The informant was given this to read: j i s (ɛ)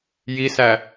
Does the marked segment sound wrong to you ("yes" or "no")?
yes